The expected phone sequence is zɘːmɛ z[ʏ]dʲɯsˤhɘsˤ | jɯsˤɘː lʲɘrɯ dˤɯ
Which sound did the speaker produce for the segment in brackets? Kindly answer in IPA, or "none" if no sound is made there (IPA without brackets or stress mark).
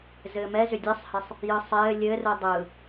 ʏ